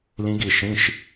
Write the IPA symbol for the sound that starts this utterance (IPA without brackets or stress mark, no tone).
l